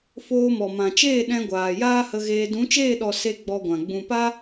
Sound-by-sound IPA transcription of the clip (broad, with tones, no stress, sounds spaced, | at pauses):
f oː˧ m ɔ˨ m ã˨ t͡ʃ eː˦˨ ɗ ɛ̃˧ ɡʷ aː˨ j aː˦ h ə˧ ɣ eː˧ d ũ˨˦ t͡ʃ eː˦˨ ɗ ɔ˨ s e˦ ɡ͡b ɔ˧ ɡʷ ã˨ ɡ͡b ũ˨ p a˦